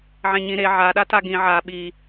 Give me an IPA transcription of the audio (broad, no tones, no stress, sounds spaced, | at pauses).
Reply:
ʕ ẽ ɲ ĩ ɾ e ʕ a ɗ a t a ɡ ĩ ʕ a ɓ i